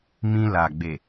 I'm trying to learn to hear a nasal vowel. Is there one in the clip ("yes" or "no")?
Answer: yes